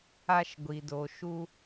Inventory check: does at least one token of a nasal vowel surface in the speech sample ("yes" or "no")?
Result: no